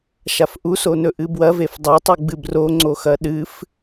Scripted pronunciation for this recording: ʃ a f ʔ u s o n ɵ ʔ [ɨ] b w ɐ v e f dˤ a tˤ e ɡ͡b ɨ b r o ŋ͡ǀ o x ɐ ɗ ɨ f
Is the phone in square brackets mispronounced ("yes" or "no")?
no